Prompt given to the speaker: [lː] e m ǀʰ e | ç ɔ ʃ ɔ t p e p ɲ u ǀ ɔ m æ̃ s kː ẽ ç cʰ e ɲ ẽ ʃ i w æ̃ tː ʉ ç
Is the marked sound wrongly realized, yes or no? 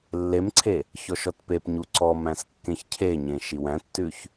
no